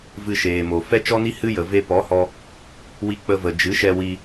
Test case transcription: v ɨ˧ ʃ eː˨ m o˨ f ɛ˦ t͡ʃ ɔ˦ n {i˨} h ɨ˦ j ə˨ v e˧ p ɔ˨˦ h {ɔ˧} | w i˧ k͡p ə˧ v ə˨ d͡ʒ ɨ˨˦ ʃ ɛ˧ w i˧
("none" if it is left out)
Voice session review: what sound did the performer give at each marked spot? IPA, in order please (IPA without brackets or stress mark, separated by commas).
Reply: i˦, ɔ˧